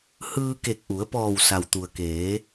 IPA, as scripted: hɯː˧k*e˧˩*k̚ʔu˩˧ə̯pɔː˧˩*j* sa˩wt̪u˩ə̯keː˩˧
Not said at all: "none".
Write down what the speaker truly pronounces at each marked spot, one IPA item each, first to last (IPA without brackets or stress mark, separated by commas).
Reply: e˧˩, w